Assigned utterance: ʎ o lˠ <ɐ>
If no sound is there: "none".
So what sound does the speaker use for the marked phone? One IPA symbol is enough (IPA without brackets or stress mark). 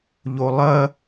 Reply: ɐ